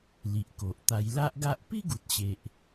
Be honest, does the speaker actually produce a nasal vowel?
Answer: no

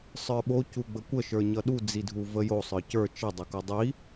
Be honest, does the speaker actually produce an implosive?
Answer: yes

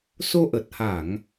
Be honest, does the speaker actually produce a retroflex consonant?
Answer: no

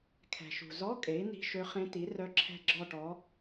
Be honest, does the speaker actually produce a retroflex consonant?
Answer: yes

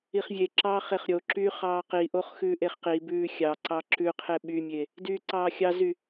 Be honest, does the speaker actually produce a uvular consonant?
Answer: yes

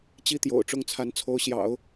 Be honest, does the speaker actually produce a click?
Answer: no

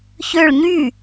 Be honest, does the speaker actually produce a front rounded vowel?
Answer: yes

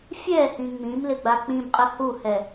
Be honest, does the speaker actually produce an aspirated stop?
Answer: no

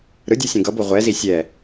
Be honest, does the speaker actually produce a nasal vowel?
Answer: yes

